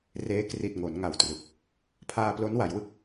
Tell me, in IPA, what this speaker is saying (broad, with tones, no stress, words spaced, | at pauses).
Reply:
reː˦˥ kri˨˩t̚ ŋo˩˦n ŋa˨˩wtrɯ˨˩k̚ | pʰaː˧plo˦˥nwa˩˦jwɯ˥˩k̚